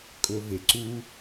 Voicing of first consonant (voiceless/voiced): voiceless